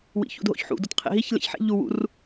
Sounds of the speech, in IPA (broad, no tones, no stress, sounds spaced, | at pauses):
w ḭ ç ṵ d ɦ o̰ ç ħ ṵ d o t qʰ ḛ ɦ i ç l ḛ ç ħ ḛ ʎ u w ṵ r